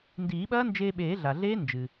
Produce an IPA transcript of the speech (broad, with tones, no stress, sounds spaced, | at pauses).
n d iː˨˩˦ ɓ ɐː˦˥ n d͡ʒ eː˧ ɓ eː˨˩˦ ɮ a˩ ɮ eː˦˥ n d͡ʒ ɨ˩